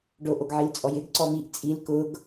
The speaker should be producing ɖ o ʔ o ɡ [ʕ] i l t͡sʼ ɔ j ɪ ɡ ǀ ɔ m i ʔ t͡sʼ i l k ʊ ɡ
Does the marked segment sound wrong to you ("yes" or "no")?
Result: no